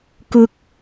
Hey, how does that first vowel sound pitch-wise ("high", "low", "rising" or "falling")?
low